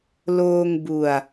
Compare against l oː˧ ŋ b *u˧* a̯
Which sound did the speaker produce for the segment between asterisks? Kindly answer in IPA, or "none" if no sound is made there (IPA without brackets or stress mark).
u˧